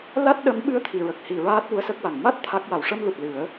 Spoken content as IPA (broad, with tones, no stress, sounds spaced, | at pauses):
l a˦˥ t̚ ɗ ə˧˥ m ɓ ɨ˧˥ ə̯ t̪ʰ i˨˩˨ ɹ ə˨˩ k̚ h i˨˩ ɹ aː˦˥ t̚ w u˧˥ ə̯ s ə˦˥ k̚ w a˨˩ ŋ m a˦˥ t̚ t̪ʰ a˦˥ k̚ w a˨˩ w ʂ ə˧ m l u˨˩ t̚ l ɨ˨˩˦ ə̯